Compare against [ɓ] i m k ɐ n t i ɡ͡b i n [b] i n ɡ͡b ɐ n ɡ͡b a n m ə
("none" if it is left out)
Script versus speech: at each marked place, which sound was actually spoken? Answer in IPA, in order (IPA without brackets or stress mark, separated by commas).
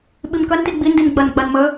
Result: ɓ, d